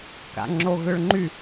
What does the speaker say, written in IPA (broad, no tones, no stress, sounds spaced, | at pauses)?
k a̰ ŋ͡ǁ o ɣ ʏ ɭ ŋ͡ǃ y